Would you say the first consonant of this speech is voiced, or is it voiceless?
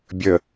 voiced